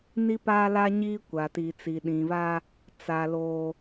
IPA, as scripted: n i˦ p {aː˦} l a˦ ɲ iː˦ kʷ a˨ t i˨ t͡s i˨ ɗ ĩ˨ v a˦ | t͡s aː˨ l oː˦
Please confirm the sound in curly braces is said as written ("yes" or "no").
yes